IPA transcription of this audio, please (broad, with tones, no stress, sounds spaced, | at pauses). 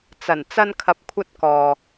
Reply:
t͡s ɐ˨˩ n t͡s ɐ˧ n kʰ ɐ˨ p̚ kʷʰ ɐ˧ t̚ k ɔː˨